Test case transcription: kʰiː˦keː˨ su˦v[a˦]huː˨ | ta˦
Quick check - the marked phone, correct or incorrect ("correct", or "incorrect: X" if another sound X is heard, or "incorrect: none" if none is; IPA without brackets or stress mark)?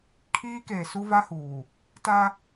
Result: correct